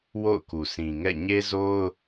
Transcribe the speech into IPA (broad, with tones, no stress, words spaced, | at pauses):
wo̰˦˨ʊ̯ku˨sʰĩ˨ŋɛ̰˦˨ ɲe˦zo˦ʊ̯